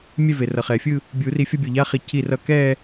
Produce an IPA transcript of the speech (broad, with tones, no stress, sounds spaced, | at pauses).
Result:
mʲ ɛ˥˧ v e˩ r ʌ˩ χ ɛ˩ fʲ ɯ˥˧ | bʲ u˨˩˦ r i˧˩ fʲ ʌ˥˧ bʲ o˧˩ ʎ a˧˥˧ χ i˧˩ c i˧˩ r ʌ˧˩ k ɛ˥˧